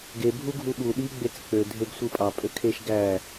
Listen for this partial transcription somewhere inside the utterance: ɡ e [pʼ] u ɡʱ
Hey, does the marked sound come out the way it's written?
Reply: no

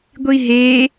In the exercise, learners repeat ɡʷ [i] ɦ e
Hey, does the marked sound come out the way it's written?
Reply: yes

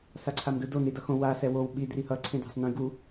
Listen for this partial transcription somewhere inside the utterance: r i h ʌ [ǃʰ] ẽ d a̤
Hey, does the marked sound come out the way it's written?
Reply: no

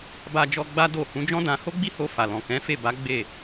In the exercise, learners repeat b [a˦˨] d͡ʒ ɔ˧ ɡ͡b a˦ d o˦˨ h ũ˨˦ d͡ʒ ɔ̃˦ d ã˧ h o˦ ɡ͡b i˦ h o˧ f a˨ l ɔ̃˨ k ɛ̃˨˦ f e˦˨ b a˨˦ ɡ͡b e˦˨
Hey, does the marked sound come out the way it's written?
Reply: no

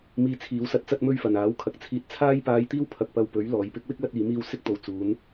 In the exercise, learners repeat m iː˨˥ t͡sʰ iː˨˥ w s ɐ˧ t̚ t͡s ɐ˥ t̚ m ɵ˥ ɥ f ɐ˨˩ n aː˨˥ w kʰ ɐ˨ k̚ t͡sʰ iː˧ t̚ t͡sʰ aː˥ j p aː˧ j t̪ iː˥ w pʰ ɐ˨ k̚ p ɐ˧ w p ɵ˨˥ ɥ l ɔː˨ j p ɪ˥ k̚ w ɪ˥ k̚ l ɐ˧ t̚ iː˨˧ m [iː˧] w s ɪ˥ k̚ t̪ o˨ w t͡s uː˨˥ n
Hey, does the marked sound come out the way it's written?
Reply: yes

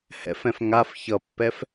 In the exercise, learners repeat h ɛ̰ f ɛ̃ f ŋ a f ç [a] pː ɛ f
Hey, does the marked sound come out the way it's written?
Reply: no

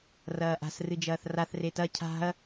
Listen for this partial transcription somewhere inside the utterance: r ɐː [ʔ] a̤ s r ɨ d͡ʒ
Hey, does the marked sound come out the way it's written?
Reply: yes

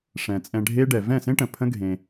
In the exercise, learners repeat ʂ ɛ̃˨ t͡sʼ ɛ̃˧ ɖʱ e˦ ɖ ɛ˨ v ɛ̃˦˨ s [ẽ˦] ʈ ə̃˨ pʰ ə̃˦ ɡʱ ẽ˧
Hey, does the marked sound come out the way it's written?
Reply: yes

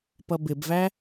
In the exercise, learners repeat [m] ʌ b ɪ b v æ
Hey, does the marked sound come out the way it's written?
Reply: no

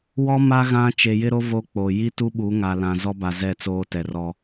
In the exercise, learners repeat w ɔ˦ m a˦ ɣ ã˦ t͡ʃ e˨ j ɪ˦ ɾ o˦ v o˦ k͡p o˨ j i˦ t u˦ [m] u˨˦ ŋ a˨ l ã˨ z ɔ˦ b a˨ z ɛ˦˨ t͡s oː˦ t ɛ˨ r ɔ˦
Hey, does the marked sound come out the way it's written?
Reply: no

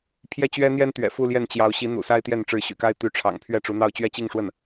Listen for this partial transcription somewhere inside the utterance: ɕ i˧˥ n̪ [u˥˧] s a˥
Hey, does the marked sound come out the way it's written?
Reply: no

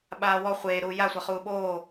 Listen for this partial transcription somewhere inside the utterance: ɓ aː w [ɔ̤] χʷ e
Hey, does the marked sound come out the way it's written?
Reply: no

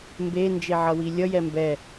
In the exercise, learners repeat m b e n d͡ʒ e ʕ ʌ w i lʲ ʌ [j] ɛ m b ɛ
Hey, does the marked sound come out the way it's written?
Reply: yes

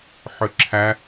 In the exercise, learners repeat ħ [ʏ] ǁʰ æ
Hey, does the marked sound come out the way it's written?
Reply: yes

